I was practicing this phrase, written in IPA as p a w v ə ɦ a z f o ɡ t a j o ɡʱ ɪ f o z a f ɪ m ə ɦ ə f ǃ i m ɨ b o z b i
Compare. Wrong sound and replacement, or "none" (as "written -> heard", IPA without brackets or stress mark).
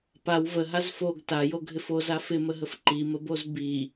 ɨ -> ə